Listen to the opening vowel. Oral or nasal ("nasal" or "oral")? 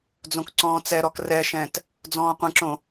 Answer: nasal